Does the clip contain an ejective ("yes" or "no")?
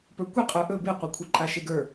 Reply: yes